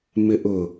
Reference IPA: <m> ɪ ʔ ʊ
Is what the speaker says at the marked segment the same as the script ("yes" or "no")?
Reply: yes